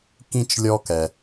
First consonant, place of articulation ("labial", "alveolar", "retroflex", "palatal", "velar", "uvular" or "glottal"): velar